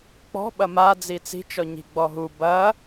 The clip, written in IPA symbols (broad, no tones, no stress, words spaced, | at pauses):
k͡pɔ̤ ɓɐmad͡zi t͡si̤t͡ʃɔ ɲi̤ɡ͡bɔɦu bɐ